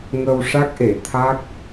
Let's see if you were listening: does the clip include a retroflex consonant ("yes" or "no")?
yes